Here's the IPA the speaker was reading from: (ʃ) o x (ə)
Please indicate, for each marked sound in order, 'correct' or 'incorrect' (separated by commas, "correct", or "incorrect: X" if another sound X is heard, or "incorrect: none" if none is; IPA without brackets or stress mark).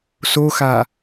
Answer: incorrect: s, incorrect: a